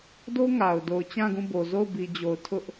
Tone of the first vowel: high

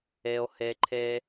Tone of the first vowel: high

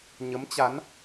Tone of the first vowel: rising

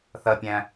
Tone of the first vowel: low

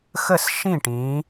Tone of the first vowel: falling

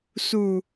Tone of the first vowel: low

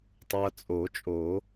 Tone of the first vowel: low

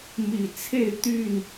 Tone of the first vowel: low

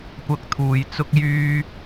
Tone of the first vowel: high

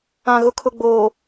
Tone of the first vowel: low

